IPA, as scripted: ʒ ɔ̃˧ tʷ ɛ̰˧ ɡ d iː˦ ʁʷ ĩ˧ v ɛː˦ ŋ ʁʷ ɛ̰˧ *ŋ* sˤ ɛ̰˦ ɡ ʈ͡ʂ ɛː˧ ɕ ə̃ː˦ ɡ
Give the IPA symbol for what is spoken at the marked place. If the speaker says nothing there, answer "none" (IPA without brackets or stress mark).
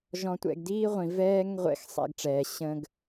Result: x